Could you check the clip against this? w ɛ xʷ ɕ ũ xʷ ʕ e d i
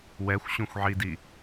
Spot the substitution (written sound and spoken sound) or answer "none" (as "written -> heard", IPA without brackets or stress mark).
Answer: e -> i